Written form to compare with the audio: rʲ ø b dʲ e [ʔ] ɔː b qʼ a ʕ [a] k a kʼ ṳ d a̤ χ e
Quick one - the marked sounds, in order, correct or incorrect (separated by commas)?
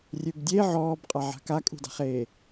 incorrect, incorrect